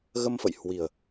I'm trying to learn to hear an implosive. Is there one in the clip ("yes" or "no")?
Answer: no